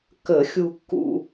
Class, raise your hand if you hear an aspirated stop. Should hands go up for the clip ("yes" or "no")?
no